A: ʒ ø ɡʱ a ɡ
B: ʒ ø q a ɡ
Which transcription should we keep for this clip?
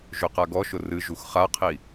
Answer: B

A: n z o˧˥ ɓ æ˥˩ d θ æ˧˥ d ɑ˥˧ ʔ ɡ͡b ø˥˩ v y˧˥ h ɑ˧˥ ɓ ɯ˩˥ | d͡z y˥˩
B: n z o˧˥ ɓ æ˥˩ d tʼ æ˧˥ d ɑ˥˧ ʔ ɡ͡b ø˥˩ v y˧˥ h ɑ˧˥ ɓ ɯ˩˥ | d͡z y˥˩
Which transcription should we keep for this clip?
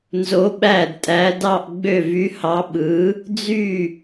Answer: B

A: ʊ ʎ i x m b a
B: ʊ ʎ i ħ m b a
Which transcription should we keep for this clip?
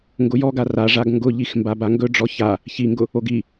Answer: A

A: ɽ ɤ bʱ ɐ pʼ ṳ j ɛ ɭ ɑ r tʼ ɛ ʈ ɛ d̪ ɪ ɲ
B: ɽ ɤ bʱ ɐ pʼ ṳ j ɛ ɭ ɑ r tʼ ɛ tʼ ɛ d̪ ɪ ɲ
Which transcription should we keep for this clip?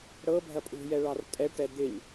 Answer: A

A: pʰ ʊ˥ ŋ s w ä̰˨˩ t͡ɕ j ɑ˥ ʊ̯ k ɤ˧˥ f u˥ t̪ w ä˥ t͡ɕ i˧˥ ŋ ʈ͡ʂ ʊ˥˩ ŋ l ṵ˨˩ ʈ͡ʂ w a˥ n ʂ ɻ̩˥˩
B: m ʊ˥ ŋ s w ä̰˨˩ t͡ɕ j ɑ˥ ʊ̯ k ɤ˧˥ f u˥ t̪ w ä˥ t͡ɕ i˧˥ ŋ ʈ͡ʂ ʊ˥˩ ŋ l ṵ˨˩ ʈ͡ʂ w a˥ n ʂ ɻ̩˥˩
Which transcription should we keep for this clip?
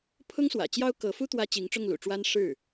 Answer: A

